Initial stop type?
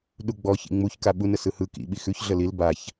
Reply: implosive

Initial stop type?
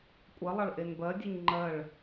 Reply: ejective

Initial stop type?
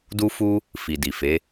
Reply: plain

